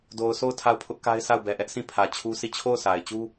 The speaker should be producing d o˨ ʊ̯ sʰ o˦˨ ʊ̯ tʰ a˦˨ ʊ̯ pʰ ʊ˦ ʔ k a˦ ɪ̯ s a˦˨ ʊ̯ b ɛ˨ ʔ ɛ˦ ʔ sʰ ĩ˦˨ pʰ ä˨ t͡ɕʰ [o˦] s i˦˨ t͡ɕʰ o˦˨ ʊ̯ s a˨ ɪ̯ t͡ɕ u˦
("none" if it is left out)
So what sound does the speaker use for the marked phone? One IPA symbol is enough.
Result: u˦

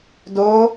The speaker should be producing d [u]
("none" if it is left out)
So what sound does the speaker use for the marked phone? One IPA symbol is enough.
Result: o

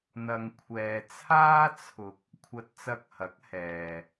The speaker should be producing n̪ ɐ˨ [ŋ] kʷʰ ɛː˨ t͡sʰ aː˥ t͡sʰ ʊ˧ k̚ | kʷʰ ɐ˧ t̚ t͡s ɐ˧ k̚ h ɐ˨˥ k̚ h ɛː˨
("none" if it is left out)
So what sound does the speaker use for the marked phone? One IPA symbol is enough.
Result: ŋ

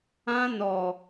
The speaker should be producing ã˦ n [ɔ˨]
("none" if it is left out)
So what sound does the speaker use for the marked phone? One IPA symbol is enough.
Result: ɔ˨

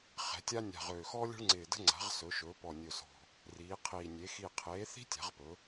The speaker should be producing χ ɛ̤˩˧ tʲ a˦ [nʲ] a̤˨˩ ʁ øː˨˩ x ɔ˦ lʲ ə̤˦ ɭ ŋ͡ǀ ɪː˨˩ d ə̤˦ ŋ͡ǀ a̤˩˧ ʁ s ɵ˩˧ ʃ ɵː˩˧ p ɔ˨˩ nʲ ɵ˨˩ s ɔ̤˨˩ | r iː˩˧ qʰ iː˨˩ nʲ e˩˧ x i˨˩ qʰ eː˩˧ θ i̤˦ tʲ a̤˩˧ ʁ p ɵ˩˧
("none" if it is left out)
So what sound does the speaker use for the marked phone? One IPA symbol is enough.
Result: nʲ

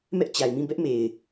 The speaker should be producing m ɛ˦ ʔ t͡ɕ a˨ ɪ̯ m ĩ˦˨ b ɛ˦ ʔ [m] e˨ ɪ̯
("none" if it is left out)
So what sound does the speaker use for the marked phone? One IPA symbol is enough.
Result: m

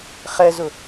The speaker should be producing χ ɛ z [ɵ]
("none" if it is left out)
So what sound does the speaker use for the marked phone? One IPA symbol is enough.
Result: ʊ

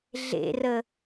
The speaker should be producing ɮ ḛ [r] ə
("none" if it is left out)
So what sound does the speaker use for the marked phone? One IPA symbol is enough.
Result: r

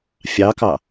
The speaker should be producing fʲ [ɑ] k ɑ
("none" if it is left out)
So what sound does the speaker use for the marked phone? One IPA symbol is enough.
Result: ɑ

